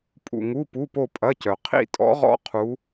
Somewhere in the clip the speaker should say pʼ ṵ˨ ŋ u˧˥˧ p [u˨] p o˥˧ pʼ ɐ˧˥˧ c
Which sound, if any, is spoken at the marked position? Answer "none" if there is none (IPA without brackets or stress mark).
u˧˥˧